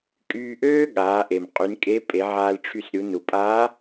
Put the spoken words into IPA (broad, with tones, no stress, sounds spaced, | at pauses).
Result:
kʼ yː˧ ʔ øː˥ ɠ aː˩˧ ʔ e˩ m qʼ y˩˧ n kʼ e˧˥ pʼ e˩˧ ʕ aː˧ l ʈ͡ʂʰ y˧ s ɾʲ u˩˧ n u˩ pʼ aː˧˥